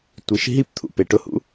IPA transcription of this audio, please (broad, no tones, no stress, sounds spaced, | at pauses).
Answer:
tʷ i ʃ ɦ i p t̪ʰ ṵ p e ʈ ʊ h ṵ